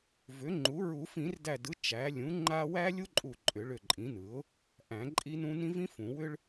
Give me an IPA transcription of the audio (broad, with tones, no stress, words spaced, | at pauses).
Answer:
vʏ˩˥ŋ͡ǃu˩˥ ɹu˨˩˦fĩ˨˩˦rdæ˧˩dɯ˩˥ t͡ʃæ˩˥ lʲũ˩˥ ŋ͡ǃa˥ wæ˥lʲu˥ǃʼu˧˩ ǃʼʏ˨˩˦ɭʏ˧˩ǃʼĩ˩˥nɯ˩˥ʊ̯ | ʔæ̃˨˩˦ǃʼi˥nũ˥ nĩ˥vĩ˥fũ˨˩˦ wʏ˥ɭ